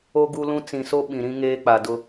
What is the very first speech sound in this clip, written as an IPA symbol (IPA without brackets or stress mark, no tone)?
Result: o